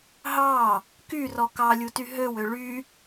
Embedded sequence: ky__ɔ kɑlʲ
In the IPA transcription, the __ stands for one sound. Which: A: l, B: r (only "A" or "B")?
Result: B